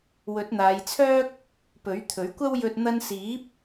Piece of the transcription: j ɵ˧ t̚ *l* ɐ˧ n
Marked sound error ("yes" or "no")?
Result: yes